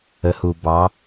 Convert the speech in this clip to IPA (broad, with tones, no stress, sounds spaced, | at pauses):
ə˩˧ h u˩ b ɑ˩˧